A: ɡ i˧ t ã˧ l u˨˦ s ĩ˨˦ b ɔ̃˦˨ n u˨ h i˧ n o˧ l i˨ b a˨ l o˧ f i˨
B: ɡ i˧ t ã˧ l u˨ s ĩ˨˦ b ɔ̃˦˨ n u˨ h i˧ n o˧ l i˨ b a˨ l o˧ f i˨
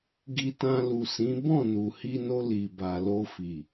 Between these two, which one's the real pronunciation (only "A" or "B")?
B